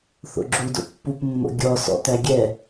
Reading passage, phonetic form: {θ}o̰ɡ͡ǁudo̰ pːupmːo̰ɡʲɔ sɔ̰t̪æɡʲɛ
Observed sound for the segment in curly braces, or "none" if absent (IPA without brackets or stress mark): θ